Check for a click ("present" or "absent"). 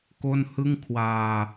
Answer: absent